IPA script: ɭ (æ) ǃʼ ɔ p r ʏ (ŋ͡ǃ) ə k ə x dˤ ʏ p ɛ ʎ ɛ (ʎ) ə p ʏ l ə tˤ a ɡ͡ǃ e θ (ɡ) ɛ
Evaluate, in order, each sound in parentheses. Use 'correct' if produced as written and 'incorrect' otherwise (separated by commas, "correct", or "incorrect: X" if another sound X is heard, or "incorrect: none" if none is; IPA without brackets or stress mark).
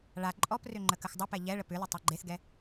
incorrect: a, correct, incorrect: ɭ, correct